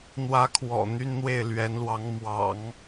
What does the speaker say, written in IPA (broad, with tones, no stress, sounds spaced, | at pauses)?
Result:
n̪ w ä˧˥ kʰ w ɔ̰˨˩ n̪ y˥ n n̪ w e˥˩ ɪ̯ l ɥ ɛ˧˥ n l w ɑ˧˥ ŋ m w ɑ̰˨˩˦ ŋ